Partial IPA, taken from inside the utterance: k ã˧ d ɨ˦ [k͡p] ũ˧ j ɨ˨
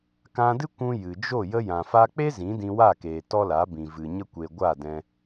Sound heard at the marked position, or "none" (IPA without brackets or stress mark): kʷ